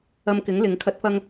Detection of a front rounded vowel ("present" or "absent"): absent